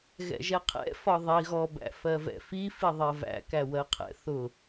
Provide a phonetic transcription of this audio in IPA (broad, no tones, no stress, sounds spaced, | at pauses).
ɣ ɛ̰ ʒ ɛ qʰ ɛ̰ f ɒ ðˤ i ɣ ɔ b æ̰ f ɜ v ɛ̰ f i f i ðˤ ɜ v æ̰ k æ w ɜ qʰ ɛ̰ θ ʊ